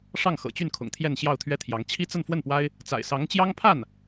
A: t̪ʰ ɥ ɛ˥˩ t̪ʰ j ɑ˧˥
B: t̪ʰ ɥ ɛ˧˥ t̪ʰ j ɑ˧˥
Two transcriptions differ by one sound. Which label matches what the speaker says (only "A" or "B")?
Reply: A